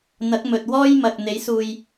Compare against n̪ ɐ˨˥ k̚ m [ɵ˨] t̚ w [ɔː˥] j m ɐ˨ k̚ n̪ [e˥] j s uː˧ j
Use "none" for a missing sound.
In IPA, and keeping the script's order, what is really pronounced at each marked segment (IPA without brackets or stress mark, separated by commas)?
ɵ˧, ɔː˥, e˨˥